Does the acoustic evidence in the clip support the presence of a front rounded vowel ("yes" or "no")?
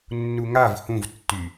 yes